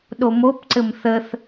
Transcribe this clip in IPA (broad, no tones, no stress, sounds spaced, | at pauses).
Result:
ɗ o m o p ǀ ɘ m θ ə θ